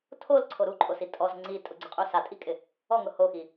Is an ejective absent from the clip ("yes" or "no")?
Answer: no